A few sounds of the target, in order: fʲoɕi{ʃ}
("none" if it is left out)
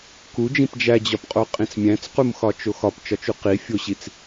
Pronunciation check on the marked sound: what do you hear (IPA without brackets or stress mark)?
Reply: t͡s